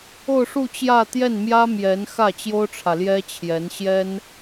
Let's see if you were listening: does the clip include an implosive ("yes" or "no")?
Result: no